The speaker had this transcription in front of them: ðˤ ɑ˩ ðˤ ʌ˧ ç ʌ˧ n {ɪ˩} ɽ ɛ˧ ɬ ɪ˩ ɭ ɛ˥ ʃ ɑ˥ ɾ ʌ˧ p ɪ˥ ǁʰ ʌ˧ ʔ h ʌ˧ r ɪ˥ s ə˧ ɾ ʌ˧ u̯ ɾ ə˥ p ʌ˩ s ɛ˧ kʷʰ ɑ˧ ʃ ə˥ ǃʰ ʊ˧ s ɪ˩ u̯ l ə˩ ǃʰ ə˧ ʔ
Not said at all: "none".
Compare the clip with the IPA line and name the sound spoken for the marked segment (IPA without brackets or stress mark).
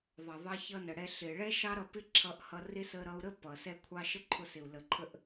ə˩